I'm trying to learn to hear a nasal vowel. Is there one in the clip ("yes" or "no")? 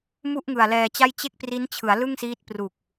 no